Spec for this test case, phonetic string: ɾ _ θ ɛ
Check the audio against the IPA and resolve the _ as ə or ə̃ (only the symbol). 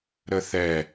ə